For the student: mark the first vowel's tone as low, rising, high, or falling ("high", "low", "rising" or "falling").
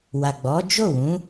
low